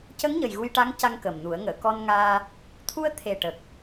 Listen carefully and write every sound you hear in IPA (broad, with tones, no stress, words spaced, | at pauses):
cə˧˥ŋɲə˨˩j ɣu˧jʈa˧˥ŋca˧ŋ kə˨˩mnu˨˩˦ə̯ ŋəː˨˩˨kɔ˧nŋaː˧ | t̪ʰu˧ə̯t̪ʰe˨˩ʈə˨˩k̚